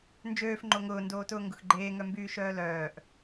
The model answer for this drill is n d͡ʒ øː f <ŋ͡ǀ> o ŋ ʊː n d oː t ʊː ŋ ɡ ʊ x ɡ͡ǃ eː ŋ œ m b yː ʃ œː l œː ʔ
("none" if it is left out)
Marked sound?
ŋ͡ǃ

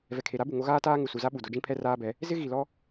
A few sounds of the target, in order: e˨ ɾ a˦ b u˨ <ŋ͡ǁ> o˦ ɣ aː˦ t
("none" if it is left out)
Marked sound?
ŋ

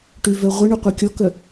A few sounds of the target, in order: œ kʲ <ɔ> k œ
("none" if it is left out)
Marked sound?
ɔ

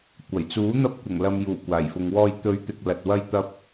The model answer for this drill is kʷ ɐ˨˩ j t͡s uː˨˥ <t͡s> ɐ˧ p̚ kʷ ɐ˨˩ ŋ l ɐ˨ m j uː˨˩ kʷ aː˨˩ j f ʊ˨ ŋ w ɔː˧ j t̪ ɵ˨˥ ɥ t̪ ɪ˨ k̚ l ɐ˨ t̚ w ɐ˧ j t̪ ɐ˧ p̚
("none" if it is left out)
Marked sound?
n̪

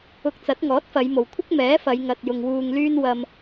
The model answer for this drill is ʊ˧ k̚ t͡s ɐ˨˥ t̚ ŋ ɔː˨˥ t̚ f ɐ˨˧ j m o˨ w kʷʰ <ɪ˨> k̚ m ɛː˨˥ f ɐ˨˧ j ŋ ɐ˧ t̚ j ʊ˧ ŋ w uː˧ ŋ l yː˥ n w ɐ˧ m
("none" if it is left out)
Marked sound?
ɪ˥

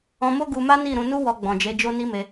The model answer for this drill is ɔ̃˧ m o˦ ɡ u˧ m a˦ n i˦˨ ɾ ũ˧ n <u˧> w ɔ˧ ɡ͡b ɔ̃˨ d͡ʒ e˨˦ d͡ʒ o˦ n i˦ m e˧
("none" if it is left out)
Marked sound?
u˦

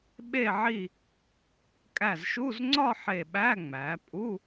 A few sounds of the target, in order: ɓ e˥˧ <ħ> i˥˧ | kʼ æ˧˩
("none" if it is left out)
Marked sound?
ʕ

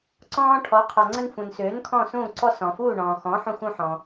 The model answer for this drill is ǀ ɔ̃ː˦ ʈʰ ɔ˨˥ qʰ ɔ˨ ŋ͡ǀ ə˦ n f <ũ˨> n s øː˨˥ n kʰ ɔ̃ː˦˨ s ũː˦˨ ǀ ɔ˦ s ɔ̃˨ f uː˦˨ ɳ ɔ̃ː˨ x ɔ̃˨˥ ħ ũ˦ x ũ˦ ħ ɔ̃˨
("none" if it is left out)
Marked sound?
ũ˨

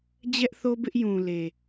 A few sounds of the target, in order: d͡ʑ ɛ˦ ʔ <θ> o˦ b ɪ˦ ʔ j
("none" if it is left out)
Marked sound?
θ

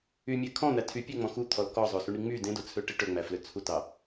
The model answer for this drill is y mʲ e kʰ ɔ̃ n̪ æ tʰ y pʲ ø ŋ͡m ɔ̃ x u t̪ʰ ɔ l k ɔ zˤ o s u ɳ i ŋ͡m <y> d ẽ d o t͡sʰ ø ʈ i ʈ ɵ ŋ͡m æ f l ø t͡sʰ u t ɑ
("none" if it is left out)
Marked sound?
y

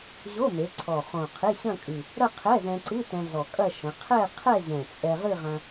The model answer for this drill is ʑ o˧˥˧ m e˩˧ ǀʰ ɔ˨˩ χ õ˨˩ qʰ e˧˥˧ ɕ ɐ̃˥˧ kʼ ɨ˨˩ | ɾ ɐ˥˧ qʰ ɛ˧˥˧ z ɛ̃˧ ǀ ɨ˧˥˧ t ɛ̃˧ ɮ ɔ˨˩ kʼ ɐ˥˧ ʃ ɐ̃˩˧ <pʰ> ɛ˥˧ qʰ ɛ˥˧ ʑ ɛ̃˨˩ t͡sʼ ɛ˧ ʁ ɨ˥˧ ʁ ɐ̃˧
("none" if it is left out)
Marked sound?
qʰ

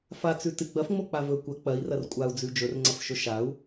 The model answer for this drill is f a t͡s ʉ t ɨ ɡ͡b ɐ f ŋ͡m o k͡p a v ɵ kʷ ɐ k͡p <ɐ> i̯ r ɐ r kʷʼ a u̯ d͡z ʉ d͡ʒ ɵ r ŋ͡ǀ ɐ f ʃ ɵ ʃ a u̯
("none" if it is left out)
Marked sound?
ɐ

